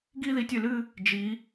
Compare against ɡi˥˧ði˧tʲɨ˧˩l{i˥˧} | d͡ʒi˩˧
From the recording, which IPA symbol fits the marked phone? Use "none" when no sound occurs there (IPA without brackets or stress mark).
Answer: ɨ˥˧